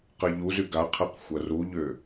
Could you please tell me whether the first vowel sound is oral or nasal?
oral